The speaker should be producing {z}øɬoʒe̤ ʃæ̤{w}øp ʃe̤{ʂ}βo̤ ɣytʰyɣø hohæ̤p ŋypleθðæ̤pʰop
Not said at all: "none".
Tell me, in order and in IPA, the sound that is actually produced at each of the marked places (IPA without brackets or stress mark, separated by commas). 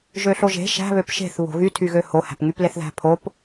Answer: ʒ, β, θ